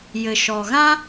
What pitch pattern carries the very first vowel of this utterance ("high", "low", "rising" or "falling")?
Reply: low